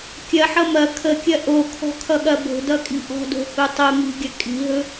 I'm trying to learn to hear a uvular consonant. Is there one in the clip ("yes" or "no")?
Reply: no